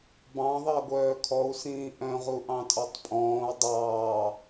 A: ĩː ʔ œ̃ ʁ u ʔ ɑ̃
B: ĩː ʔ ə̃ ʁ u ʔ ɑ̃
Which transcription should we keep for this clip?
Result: A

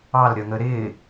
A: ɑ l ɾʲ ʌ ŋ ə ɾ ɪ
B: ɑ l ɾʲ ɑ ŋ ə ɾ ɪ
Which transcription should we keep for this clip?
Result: A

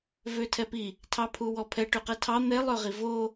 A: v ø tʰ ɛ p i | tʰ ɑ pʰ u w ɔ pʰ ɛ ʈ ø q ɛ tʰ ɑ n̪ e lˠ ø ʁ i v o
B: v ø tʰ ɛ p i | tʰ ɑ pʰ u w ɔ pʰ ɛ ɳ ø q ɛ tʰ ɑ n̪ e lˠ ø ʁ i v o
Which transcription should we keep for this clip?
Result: A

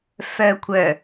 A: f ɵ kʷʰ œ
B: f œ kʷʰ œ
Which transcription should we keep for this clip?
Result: B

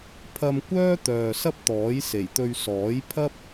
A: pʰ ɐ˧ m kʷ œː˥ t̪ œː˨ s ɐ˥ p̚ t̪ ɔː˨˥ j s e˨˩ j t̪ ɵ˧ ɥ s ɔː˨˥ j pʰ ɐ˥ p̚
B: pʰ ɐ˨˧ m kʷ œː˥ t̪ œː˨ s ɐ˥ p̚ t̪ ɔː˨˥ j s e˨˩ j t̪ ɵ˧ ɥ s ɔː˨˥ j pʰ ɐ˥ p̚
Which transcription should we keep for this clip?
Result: A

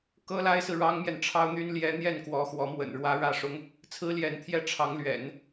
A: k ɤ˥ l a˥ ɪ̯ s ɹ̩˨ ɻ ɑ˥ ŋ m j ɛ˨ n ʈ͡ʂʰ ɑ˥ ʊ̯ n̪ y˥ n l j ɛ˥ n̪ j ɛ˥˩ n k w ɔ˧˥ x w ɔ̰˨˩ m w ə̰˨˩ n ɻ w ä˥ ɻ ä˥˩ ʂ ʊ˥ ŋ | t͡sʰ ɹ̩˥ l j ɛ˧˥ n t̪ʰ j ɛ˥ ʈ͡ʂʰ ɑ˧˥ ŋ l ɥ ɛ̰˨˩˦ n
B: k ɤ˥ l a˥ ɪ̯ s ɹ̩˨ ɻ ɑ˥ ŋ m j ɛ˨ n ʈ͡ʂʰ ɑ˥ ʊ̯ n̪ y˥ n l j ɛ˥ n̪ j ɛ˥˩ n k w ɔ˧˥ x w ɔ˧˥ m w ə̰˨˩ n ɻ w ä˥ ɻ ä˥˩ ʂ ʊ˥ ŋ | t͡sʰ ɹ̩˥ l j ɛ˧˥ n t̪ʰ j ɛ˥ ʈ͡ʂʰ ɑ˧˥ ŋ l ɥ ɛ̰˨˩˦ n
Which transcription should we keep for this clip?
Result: B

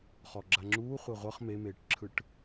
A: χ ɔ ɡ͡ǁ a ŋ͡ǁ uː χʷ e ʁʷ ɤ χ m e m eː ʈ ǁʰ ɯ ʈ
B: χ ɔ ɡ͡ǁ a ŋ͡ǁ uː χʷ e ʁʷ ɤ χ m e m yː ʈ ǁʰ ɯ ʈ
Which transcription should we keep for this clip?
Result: A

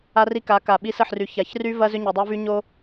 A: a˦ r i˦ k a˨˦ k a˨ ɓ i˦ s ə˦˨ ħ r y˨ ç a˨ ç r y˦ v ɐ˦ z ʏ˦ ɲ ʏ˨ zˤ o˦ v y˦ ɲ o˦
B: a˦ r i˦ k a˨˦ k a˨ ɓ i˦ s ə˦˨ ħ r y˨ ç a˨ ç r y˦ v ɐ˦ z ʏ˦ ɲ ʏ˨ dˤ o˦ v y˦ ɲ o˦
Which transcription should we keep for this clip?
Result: B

